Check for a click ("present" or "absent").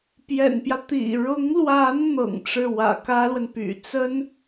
absent